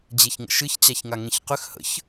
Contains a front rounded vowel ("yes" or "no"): yes